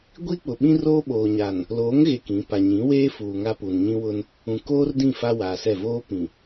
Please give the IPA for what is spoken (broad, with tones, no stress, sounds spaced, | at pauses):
ɡʷ i˦ k͡p ʊ˨ ɓ ĩ˦ r oː˦ ɓ oː˨ ɲ a˨ n | l oː˨˦ ŋ ɣ e˨ k ĩ˨˦ p a˨ ɲ ĩ˨˦ w eː˦ f uː˨ ŋ a˦ p uː˨ n ɲ ĩ˦ w ʊ˦ n | ũ˨ k oː˦ r d ĩ˦˨ f a˦ w aː˨ s ɛ˦˨ v oː˦ p ĩ˨